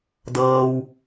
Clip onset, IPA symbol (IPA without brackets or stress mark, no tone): d